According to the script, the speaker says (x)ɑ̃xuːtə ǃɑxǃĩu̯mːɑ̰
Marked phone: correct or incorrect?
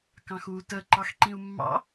incorrect